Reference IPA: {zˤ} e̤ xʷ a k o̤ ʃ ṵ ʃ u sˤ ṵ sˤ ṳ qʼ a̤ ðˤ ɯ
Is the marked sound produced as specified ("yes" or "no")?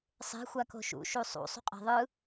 no